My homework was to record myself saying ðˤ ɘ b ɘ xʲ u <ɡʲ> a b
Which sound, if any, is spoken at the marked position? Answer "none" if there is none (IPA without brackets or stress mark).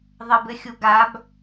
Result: ɡ